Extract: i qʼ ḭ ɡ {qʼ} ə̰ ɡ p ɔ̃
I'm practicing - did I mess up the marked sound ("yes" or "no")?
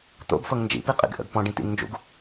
yes